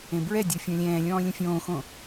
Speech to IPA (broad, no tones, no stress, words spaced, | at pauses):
ẽbɹɛdʲo fʲɔ̃lʲɛ̃ːlʲɔ̃ː lʲə̃fʲõːxõ